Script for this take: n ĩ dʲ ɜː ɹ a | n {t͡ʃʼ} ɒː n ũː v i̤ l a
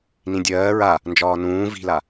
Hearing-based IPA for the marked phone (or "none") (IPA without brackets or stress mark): d͡ʒ